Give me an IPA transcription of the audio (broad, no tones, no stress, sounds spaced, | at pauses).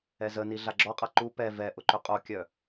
ɛ z ə n i ɮ a ɡ͡ǁ ɔ qʼ a ǃ u p ɛ v ɛ ʔ ʊ ǃ ʏ qʼ o kʲ œ